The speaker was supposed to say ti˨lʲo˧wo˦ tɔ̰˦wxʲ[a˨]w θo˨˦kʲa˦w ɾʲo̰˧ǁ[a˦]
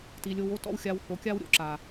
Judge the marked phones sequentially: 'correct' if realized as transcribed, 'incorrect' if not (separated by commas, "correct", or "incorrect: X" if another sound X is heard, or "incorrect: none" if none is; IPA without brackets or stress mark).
incorrect: a˧, incorrect: a˨